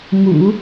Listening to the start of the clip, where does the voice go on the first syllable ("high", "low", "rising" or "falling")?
low